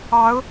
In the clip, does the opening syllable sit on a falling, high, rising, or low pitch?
rising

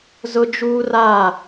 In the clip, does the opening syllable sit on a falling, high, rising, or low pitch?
high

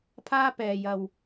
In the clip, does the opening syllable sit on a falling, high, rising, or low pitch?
high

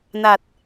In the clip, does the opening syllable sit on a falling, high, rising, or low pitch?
low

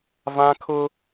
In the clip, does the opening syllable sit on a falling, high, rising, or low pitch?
high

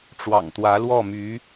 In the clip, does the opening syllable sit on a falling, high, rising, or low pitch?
low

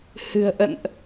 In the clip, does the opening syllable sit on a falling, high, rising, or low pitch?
low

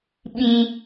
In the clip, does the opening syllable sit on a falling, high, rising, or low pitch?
low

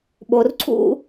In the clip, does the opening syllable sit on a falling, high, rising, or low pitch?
low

